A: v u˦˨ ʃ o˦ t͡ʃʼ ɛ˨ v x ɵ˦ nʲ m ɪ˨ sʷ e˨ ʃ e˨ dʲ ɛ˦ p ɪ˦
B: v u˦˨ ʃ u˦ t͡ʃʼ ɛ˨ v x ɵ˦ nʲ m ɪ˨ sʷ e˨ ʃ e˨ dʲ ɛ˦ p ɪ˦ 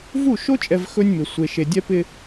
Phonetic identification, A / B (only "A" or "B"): A